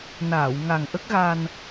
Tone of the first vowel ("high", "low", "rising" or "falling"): low